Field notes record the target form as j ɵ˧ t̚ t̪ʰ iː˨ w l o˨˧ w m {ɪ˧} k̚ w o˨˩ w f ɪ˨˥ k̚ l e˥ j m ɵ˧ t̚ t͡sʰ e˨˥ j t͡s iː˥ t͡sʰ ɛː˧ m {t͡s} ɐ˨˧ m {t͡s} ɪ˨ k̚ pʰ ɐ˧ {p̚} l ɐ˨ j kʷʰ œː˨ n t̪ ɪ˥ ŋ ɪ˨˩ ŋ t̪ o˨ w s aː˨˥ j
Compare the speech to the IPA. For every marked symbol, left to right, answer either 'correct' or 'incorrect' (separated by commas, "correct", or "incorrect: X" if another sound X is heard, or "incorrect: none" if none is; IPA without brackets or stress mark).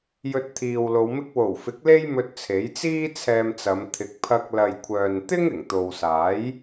correct, correct, incorrect: t̪ʰ, incorrect: k̚